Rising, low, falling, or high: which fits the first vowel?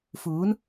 rising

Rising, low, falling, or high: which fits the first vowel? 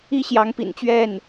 high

